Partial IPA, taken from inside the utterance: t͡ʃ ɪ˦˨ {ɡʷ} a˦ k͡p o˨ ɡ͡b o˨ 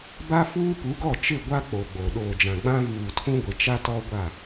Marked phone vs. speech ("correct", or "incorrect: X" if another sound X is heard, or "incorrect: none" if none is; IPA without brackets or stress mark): correct